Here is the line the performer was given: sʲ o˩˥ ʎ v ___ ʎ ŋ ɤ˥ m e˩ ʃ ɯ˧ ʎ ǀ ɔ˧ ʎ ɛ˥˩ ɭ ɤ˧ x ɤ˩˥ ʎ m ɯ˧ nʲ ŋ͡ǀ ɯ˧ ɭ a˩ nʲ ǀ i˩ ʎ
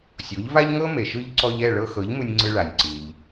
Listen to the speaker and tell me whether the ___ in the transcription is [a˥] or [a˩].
a˥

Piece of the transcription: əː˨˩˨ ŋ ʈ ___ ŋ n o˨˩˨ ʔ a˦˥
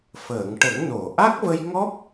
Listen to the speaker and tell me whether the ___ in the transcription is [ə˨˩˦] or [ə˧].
ə˨˩˦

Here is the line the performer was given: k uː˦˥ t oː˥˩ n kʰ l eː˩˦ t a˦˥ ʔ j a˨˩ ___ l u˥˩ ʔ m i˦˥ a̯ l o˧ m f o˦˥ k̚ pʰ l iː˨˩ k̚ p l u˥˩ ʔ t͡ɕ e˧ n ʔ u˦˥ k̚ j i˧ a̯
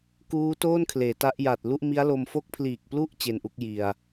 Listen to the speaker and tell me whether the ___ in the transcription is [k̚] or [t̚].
t̚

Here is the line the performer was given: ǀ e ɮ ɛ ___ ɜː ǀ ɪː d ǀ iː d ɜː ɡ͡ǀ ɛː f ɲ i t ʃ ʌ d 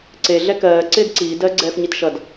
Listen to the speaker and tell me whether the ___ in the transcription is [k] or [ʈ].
k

